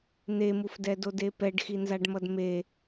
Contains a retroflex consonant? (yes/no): yes